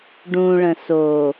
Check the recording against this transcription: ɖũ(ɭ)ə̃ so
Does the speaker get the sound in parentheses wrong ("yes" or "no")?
no